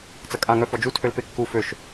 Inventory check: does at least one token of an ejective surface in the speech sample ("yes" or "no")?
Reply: yes